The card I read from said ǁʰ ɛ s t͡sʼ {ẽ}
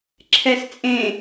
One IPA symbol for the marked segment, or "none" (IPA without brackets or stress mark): ẽ